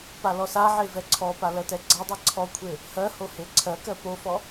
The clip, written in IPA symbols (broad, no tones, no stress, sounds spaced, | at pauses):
p a l ɔ s a ʕ e v ɛ ǀʰ ɔ p a l ɜ t ɛ ɡ͡ǀ a dˤ ɛ ǀʰ ɔ kʷʰ e | h ɜ h o h e ǀʰ ɜ k ɜ p o f ɔ